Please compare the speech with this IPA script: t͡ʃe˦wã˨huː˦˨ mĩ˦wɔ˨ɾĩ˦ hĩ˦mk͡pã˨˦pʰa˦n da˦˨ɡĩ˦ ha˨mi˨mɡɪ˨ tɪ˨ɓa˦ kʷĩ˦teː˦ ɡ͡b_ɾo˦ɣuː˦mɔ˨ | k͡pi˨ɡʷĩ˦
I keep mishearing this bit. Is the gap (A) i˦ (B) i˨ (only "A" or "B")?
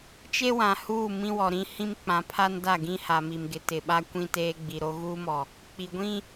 B